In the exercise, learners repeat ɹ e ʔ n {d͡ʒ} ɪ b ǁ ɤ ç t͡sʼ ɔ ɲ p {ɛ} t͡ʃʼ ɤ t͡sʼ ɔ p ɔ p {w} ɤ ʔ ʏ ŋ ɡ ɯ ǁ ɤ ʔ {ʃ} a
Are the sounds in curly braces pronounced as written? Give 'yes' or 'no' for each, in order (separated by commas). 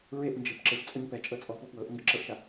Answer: yes, yes, yes, yes